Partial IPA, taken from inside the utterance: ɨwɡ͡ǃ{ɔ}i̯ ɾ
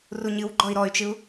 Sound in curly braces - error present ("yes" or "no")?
no